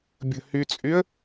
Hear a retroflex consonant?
no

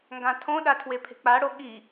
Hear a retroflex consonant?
yes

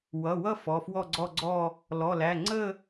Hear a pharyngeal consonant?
no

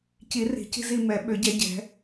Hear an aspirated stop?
no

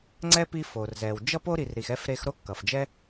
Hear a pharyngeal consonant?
no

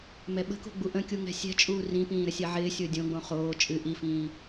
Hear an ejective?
yes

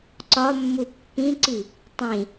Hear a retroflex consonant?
no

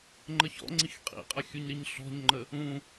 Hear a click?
yes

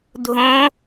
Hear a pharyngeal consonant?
no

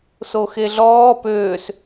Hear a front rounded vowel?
yes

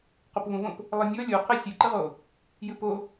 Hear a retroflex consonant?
no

